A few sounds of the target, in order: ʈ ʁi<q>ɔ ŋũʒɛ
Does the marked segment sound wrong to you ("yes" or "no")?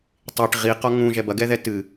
no